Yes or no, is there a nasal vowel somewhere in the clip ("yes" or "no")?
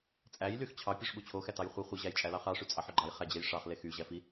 no